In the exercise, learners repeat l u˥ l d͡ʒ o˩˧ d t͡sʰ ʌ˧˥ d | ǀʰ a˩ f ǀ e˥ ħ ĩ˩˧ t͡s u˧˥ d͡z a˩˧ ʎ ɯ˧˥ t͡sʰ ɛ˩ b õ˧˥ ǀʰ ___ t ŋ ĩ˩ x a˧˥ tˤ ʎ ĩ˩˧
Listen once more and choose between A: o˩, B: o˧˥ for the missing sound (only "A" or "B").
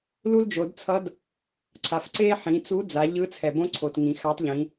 A